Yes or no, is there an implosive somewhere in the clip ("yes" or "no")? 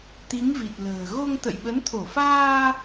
yes